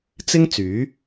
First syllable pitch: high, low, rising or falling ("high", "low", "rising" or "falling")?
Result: high